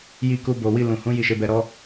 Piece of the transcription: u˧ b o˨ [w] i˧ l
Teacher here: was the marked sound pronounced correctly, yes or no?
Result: yes